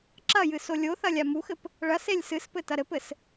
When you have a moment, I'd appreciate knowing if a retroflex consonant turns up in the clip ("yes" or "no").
yes